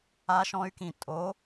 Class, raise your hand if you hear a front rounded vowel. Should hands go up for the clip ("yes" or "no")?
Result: yes